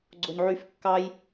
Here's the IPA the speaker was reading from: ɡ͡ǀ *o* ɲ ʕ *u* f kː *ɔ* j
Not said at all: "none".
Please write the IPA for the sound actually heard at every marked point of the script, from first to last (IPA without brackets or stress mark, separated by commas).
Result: o, y, ɑ